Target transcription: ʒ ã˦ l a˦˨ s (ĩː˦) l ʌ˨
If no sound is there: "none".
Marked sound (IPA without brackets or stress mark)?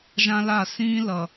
ĩː˦